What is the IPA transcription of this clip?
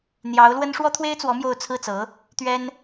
n̪jɑ˧˥ʊ̯lwə˥n ʂwɔ˥t̪ʰwe˥ɪ̯t͡swɔ˧˥ mjo˥˧ʊ̯ t͡sʰɹ̩˥˩t͡sɤ˧˥ | t̪ɥɛ˥n

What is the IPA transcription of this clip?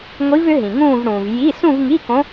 ŋʷi˧˥vʏ˧˥ɦĩ˩ŋũː˥˧v ɽũː˩v ji˧˥˧ sũ˥˧vŋi˧˥˧kõ˧˥

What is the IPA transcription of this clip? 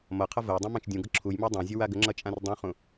mʌqʰʌ vəjdˤũ mãt͡ʃdʲũɡʌ ǁʰujma dˤãzʲə waɡəŋ͡ǁʌ t͡ʃʼãrdˤũχũ

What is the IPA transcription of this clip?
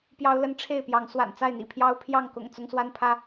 pjɑ˦ʊ̯lə˦n ʈ͡ʂʰe˥˨ɪ̯pjɑ˨˦ŋswa̰˨˩n t͡sa˥˨ɪ̯n̪ḭ˨˩pʰjɑ˦ʊ̯ pʰjɑ˥˨ŋkʊ̰˨˩ŋ t͡sʊ˦ŋswa˦npʰä˦

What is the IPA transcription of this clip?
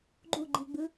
ɡ͡ǃuɡ͡ǃiɡ͡bɯ

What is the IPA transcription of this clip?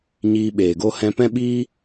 ɲiː˧ɓeː˨ɡo˦ hɛ̃˦ pɛ̃˦ɓiː˦

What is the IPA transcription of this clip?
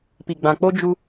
pi˨ɡ͡bã˨k͡po˦ d͡ʒu˦

